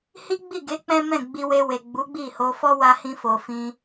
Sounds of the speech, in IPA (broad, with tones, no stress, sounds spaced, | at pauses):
h i˦ ɡ͡b i˦˨ ɡ e˨˦ k͡p ɛ̃˦ m ɛ̃˦˨ ɡ͡b i˧ w e˧ w e˨ ɡ͡b u˨˦ ɡ͡b i˦˨ h o˧ f ɔ˦ w a˧ h ĩ˧ f o˨ f ĩ˧